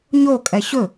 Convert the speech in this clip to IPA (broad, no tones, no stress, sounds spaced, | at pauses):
ɲ o kʼ ɛ ɕ ɵ